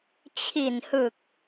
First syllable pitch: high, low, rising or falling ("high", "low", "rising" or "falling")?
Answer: low